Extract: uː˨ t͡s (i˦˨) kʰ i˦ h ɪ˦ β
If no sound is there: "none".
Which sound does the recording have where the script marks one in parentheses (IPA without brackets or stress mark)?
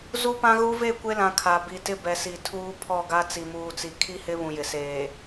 i˨